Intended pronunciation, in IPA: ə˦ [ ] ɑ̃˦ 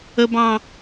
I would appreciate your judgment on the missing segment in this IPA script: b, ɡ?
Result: b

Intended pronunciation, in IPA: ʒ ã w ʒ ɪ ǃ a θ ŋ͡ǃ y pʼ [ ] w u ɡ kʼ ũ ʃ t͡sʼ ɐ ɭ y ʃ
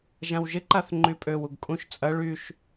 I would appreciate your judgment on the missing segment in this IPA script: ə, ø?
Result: ø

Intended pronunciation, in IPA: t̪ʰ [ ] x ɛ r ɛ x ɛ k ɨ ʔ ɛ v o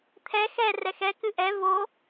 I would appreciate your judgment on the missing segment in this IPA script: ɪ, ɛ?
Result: ɛ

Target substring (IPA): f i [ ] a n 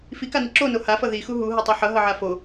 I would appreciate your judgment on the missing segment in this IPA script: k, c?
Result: k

